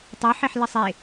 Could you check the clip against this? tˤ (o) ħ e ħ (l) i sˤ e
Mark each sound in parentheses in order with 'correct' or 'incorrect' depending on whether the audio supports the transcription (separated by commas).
correct, correct